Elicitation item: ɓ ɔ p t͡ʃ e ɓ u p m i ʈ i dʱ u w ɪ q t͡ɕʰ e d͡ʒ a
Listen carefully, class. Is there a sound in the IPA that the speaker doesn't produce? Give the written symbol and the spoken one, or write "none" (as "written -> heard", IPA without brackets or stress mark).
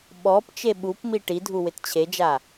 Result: q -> t